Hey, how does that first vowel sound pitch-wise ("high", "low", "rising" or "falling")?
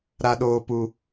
high